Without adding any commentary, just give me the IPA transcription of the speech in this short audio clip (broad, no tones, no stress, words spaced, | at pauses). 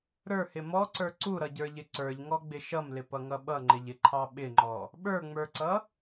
ɾə˞hɪ mɔǀə˞ ǀuɾʌɟə˞ʎɪ ǀə˞ʎŋɔɡ͡bɪ ʃʌmlɪpʌŋʌ ɓʌŋ͡ǃɪʎɪǃʰɑ ɓɪŋ͡ǃɔ | ɓə˞ŋ͡mə˞ǀʌ